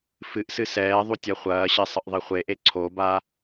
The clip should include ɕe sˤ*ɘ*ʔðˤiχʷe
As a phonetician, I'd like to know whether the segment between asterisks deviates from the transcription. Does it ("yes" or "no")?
no